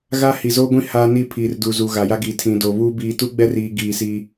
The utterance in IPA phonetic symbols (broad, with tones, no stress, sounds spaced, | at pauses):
ɣ a˦ h i˨ z oː˦ ɡʷ ĩ˦ h aː˦ n i˦˨ pʰ iː˨ r d uː˨ z u˨ ɣ a˨ j a˦ ɡ iː˨ tʰ ĩ˨ d o˨ β uː˦ b iː˨ t u˦ ɡ͡b ɛ˦ r iː˨ ɡ iː˨ s iː˦